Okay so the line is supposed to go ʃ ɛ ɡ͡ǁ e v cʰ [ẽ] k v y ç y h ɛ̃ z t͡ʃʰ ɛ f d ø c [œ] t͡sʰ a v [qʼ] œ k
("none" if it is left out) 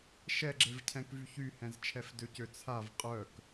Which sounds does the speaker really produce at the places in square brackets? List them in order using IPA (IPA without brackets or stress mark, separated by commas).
ɛ̃, ø, qʼ